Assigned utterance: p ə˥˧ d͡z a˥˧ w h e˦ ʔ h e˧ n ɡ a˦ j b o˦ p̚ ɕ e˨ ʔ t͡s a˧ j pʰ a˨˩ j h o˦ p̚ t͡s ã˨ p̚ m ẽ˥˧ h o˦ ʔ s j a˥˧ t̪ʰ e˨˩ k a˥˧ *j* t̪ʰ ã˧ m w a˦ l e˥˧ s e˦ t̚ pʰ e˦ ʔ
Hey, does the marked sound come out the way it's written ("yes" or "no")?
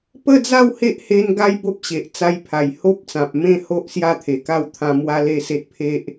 no